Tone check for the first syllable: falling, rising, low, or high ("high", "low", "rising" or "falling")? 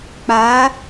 rising